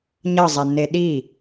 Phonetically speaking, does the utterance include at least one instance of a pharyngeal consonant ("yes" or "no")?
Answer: no